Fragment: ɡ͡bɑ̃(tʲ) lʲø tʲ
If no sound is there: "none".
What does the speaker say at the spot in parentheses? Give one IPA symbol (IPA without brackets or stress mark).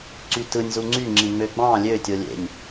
none